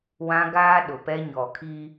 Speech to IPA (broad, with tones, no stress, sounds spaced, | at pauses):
w ã˦ ɡ aː˦ ɗ ʊ˨ p ɛ˦ ɲ ɔ˨ kʰ iː˦